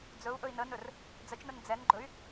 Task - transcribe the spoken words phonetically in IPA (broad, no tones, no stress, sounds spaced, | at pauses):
d͡z ɵ u̯ ʔ ɵ i̯ n ə n ɵ r | d͡z ə t͡ʃ n ə n d͡z ɛ n ɡ͡ǃ ɵ y̯